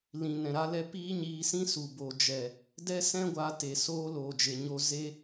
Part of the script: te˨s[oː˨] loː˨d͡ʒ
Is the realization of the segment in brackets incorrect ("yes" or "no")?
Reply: yes